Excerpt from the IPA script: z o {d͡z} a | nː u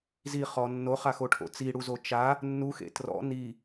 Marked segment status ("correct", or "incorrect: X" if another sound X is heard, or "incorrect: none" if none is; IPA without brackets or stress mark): incorrect: t͡ʃ